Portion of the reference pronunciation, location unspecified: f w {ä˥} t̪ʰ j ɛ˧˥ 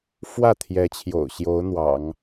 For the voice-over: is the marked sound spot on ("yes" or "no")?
no